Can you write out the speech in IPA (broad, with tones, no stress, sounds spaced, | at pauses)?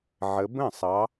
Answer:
ʕ ə˨˦ b ə̃˥˩ sˤ ɑ˨˦